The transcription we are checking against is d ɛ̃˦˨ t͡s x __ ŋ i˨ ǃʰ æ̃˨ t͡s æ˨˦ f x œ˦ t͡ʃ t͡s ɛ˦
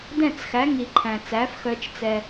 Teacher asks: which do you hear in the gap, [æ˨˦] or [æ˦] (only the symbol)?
æ˨˦